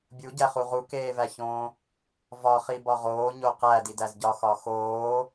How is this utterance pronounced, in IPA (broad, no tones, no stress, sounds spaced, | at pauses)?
bʲ u ɟ æ χ u ʁ u k eː v æ ç õː | v ɒ χ i b ɒ ʁ oː ɲ o q æ d i d æ z ɟ ɒ x ɒ x oː